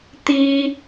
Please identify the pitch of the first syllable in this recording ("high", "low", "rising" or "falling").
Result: high